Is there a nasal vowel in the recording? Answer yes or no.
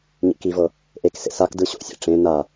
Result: yes